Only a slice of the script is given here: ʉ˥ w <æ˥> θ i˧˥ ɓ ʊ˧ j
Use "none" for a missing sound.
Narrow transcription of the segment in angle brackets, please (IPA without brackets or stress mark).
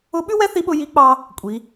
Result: ɛ˥